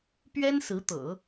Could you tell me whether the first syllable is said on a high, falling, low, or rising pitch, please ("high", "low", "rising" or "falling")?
high